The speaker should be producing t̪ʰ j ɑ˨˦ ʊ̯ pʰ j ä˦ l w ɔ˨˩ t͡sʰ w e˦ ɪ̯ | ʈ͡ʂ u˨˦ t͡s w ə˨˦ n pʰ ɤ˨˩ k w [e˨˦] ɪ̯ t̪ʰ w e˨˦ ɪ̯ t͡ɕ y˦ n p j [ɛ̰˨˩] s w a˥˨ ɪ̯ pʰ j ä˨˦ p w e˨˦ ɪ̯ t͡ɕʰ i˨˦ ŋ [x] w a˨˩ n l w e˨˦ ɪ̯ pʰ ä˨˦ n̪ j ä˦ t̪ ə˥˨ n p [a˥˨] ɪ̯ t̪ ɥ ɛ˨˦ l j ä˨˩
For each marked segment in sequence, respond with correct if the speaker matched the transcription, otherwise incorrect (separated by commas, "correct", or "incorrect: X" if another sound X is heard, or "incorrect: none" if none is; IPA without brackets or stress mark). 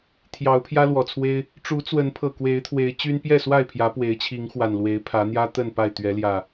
correct, incorrect: ɛ˥˨, correct, correct